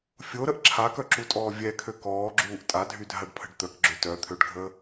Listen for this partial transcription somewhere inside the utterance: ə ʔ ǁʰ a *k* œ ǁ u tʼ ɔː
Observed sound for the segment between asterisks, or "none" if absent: k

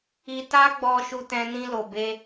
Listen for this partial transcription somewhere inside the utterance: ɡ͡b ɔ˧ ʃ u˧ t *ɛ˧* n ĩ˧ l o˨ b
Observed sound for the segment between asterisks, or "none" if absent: ɛ̃˧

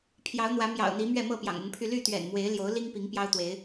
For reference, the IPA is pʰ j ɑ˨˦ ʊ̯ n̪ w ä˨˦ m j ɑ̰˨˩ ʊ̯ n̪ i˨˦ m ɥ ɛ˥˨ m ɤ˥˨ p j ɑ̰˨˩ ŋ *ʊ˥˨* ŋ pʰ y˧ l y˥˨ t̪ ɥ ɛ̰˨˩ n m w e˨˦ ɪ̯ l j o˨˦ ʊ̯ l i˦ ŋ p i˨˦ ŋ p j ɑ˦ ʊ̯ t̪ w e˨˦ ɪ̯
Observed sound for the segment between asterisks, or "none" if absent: ʊ˨˦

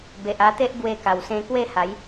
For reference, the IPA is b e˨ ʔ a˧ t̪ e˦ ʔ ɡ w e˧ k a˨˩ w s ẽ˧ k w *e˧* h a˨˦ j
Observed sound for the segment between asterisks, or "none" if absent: e˥˧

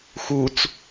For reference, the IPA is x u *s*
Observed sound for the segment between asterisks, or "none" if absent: t͡s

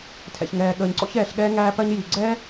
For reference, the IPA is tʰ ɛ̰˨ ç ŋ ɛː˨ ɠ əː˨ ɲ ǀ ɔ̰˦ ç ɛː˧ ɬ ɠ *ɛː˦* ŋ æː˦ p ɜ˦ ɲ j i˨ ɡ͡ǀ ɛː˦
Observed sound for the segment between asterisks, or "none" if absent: ɛː˦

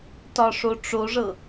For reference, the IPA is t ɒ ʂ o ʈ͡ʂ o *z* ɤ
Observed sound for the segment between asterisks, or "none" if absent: ʐ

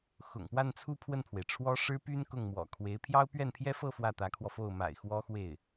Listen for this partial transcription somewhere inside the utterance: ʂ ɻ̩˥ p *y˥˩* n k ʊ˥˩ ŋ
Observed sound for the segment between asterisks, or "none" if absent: y˥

